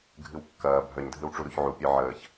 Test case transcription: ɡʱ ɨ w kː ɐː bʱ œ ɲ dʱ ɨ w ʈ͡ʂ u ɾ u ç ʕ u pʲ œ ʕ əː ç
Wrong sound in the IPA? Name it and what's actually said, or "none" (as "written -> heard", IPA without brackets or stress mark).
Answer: none